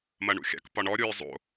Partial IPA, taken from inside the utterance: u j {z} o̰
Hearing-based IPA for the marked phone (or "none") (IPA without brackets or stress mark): zˤ